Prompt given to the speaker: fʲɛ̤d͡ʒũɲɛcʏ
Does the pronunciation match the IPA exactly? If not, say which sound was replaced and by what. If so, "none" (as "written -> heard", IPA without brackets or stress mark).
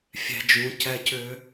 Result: ɲ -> c